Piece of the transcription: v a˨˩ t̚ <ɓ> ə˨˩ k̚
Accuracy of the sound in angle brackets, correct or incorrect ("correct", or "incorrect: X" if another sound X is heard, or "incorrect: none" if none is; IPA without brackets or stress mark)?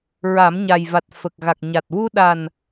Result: incorrect: f